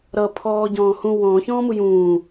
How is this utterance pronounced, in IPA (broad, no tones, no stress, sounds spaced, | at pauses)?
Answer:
ɾ ʌ pʰ ɔː ɟ ɔ̃ː h ũ w ɔ̃ː ç ɔ̃ː m u j ũː